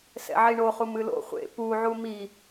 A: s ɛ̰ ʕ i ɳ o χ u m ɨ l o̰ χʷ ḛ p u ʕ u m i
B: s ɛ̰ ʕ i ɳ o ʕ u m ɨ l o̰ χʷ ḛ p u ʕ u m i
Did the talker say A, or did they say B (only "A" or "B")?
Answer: A